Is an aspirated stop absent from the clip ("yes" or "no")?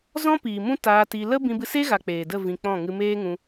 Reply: yes